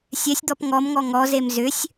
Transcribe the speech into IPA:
sʲɛsʲd̪ɔp ŋɔmŋɔ ŋɔzem zʏsʲ

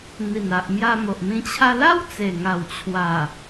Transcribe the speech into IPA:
n̪i˨˩na˨ʔ mja˧mo˨ʔmĩ˧ t͡ɕʰa˧la˦w t͡se˨˩ŋa˨˩w t͡ɕʰwa˨˩

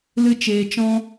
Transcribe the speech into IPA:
lɨ˦t͡ʃeː˧ t͡ʃɔ̃˦

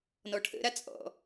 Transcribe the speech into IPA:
nɔʈʰə̰ɾa t͡sʼɔ̰

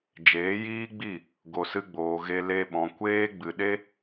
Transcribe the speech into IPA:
d͡ʒeː˨˦jiː˦ɡ͡bi˦˨ | ɡo˨sɨ˧ɡ͡boː˨ ɣe˧ le˧ɓɔ̃˨ kʷeː˦ ɡ͡bɨ˨ɗe˦

